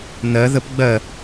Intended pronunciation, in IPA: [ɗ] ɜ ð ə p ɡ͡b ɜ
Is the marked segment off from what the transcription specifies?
yes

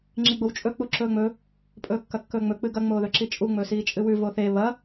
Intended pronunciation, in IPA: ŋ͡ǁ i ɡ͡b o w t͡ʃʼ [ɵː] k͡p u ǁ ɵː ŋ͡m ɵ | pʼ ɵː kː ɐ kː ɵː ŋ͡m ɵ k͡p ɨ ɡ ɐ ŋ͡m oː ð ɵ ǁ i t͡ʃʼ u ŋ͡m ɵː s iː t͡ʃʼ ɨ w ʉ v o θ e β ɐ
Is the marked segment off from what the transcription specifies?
yes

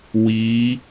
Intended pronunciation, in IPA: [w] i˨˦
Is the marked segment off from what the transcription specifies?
no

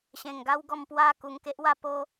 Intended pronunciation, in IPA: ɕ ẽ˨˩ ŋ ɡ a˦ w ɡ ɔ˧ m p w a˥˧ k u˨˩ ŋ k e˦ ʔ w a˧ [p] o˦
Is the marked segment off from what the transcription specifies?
no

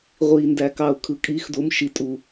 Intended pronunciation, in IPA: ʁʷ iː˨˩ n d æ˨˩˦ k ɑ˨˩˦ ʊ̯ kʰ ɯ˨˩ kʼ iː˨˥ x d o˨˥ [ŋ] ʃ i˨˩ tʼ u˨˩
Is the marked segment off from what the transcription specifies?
yes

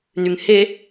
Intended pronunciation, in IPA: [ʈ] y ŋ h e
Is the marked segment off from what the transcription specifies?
yes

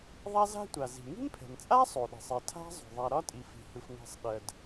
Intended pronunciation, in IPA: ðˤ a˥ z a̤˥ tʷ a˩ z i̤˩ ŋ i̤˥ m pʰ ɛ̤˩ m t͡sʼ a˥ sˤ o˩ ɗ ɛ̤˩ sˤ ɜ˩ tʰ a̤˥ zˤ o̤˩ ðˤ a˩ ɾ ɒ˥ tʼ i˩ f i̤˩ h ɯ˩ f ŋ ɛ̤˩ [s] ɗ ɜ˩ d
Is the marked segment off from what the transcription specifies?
yes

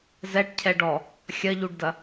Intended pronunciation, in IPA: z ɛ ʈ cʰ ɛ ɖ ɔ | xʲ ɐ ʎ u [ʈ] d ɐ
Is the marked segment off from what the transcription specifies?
yes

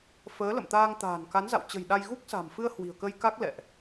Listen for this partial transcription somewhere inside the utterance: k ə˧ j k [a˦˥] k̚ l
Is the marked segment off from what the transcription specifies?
no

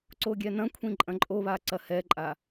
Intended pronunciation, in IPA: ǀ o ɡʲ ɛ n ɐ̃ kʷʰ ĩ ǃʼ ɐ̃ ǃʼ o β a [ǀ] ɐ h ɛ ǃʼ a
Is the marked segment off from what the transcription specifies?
no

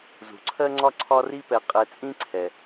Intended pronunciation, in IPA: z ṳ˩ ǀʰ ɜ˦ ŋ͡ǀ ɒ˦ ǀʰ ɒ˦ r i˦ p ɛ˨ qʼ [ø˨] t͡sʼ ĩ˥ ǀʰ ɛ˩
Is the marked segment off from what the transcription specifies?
yes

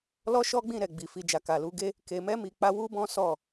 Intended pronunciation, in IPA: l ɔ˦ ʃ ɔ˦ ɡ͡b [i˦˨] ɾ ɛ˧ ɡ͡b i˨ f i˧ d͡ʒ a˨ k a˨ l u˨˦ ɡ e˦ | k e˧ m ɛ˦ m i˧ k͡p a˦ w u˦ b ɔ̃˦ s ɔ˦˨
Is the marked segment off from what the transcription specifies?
yes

